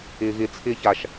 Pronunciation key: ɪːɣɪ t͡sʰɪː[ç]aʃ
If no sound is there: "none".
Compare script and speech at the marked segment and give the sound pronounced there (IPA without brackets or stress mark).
ç